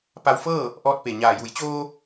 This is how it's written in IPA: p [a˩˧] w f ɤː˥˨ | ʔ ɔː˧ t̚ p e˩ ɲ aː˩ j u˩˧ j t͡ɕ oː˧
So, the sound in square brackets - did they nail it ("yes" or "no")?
no